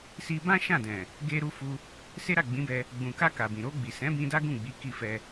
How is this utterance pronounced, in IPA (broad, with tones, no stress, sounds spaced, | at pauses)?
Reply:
s i˧ b ã˦ ʃ ã˦˨ d ɛ̃˨ | ɡ e˧ ɾ u˧ f u˧ | s e˦ ɾ a˦˨ ɡ͡b ĩ˨˦ b ɛ˧ | ɡ͡b ũ˨ k a˧ k a˨ b ĩ˨ ɾ o˧ ɡ͡b i˨ s ɛ̃˨˦ b ĩ˧ d a˦ ɡ ũ˦˨ ɡ͡b i˨˦ k i˦˨ f ɛ˧